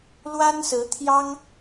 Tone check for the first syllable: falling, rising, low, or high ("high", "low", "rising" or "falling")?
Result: high